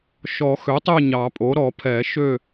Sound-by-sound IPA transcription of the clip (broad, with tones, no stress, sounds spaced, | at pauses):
ʃ ɔ˨˩˦ x ø˩˥ tˤ e˦˨ ɲ ɑ˨˩˦ pʼ o˩˥ ɾ ɔ˨˩˦ pʰ ɛ˨˩˦ ʃ ø˦˨